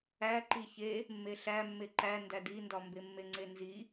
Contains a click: yes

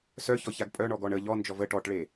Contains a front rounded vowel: yes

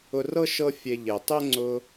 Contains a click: yes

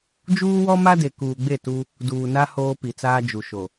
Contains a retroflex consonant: no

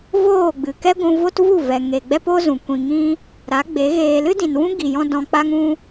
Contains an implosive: no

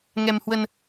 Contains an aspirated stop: no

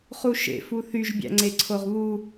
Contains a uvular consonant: yes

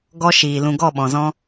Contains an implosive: yes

